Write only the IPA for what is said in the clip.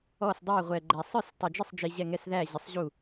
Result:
ɔ˥˩sdˤæ˥˩ ʁʷɛ˨ ɡ͡ǃæ˨ sˤə˞˥˩stˤʌ˨d͡ʒɪ˥˩sˤd͡ʒi˨ ʑɛ˥˩ŋɛ˥˩sðæ˥˩ ʑɪ˨sˤ ʑu˥˩

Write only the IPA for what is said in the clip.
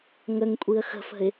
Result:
ŋəŋkʷʼiə̯ xə̤fə̤ɪ̯

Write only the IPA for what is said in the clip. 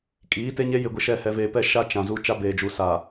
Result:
kʼiː˨˦te˦ɲe˦ jɪ˨ɡʷɪ˨ʃɛ˨ hɛ˨veː˨pɛ˦˨ ʃa˦ t͡ʃã˨zu˦ t͡ʃa˦beː˨d͡ʒu˨ sa˨

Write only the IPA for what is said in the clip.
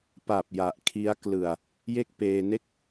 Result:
pa˨˩p̚ ja˨˩ʔkʰi˦˥a̯ klɯ˨˩a̯ | je˥˩k̚peː˧ ne˥˩k̚

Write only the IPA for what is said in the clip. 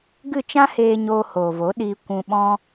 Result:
ɡɨ˦˨t͡ʃã˦heː˧ ɲoː˧hoː˨vo˨˦ɗiː˧ kʷũ˧ ɓɔ̃˦

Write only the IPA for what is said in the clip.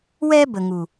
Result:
wɛ˦ bə˨ŋu˨

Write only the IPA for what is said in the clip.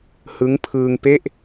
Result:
hɯ˦˥ŋpʰɯː˧ŋpe˥˩ʔ

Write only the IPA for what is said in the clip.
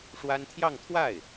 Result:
ʂwa˥n t̪ʰjɑ˥˧ŋ t̪ʰwa˥˩ɪ̯

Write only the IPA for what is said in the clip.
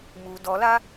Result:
mu dɔla

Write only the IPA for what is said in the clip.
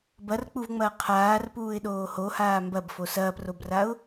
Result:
bɐrk͡puvŋ͡mɐː qʰaːrpuːɪ̯ɗoː hohaː mbɐbfo sɐːprobraʊ̯

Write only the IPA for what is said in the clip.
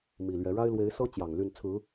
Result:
mi˨˩lɥɛ˨˦ ɻa˦ɪ̯lwe˨˦ɪ̯ sɤ˦ t͡ɕjɑ˨˩ŋ ly˥˨n t͡sʰɹ̩˨˦

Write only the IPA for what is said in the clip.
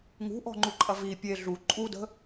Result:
ŋṳʔɔ̤ŋ͡ǃuǃʼɐ vi pʲe ɮu ǃʼudə̤

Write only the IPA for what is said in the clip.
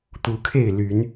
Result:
t̪u˨˦kʰe˥˨ɪ̯ ly˨˦n

